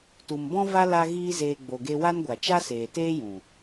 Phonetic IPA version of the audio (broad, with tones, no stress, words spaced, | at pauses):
tu˨mbɔ̃˦va˦ la˦ɣiː˦zeː˧ ɡ͡bo˨ɡe˧wa˦nɡʷa˨ t͡ʃa˦seː˨teː˦jũ˨